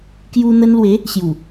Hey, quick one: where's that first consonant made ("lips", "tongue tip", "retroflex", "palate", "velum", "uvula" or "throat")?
velum